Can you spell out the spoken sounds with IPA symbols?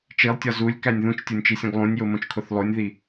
t͡ʃ i lˠ tʲ ɒ z u lʲ k æ nʲ ð ũ t͡ʃ tʲ o nʲ t͡ʃ i sʲ õ ɡ lˠ ũ nʲ j o m õ t͡ʃ kʰ o θ lˠ o nʲ ð i

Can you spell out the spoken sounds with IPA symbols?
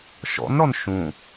ʃ ɔ̰ n ɾ ɔ n ʃ ũ

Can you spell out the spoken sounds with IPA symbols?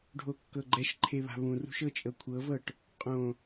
ɖʱ o kː ɤ ɡ͡ǃ ɛ ʃ ǃʰ e β a̤ β ũ r ṳ ʃ ɤ t͡ʃʼ ɤ kʷʰ ɤ v ɤ ʈ | qʼ õ

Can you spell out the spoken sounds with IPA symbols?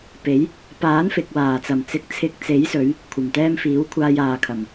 p e˨˥ j | p aː˨˥ n f ɪ˨ k̚ w aː˨˩ t͡s ɐ˨˩ m t͡s ɪ˨˥ k̚ t͡sʰ ɪ˨˥ k̚ t͡s e˨˥ j s ɵ˨˧ ɥ | kʷʰ ɐ˨˩ m t̪ ɛː˧ m f iː˨˥ w kʷʰ aː˧ j aː˨ kʰ ɐ˨˩ m

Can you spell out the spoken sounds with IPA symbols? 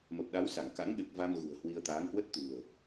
m ə˨˩ p̚ ɗ a˨˦ w s a˧˩ ŋ k a̰˧˥ ŋ ɗ ɨ˨˩ k̚ v a˧ m ɣ ṳ˨˩ ə̯ h w i˧ ə̯ t̪ aː˨˦ ŋ h w ə˦˥ t̚ t̪ ṳ˨˩ ə̯

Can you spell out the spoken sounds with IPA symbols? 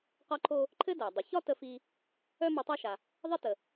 q ɒ˧ ǃʰ o˧ | ǃʰ ɘ˥ d æ˩ dˤ ə˩ ç ɒ˥ t ə˧ f i˧ | œ˥ m u˧ tˤ æ˥ ʃ a˩ | ðˤ i˥ t ə˩

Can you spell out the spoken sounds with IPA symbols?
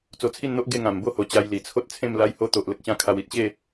t͡s o˧ t͡sʰ i˥˧ n n̪ o˦ ʔ ɡ e˥˧ ŋ ã˨˩ m b o˦ h o˨˩ t͡ɕ a˧ j l i˨˩ t͡sʰ o˦ t̚ t͡sʰ ẽ˥˧ m l a˧ j h o˦ t̪ o˨ ʔ l ə˦ k̚ ɕ ã˥˧ kʰ a˧ w i˨ t̚ ɕ e˥˧

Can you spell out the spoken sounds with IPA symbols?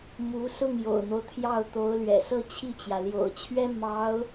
m u˧˥ s ʊ˥˩ ŋ j o̰˨˩ ʊ̯ n̪ o˦ ʊ̯ t̪ʰ j ɑ˥˩ ʊ̯ t̪ o˧˥ ʊ̯ l ɥ ɛ̰˨˩ s ɤ˥˧ t͡ɕʰ i˥˩ t͡ɕ j ä˩ l j o̰˨˩ ʊ̯ t͡ɕʰ ɥ ɛ˥ m ɑ˧˥ ʊ̯

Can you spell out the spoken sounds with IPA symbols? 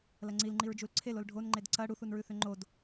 l ɐ ŋ͡ǀ i l ŋ͡ǃ i ɹ d͡ʒ u l ǀʰ e l o l ɖʱ o n ŋ͡ǃ e d ǀ ɐ ɽ u θ u n ɹ ʉ θ ʏ ŋ͡ǃ o d

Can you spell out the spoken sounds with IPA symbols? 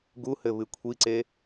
ɡ u h ɘ β ɨ kʷʰ i ǀ e

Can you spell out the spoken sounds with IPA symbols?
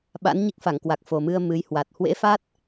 ɓ a̰˧˥ n ɲ i˦˥ k̚ f a˧˩ ŋ k w a˨˩ k̚ f o˨˩ m ɨ˧ ə̯ m ɨ˨˦ j h w a˨˩ t̚ h w ḛ˧˥ f a˦˥ t̚

